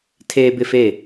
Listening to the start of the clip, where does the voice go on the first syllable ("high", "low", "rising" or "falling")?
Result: high